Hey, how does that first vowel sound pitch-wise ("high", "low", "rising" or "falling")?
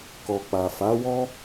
low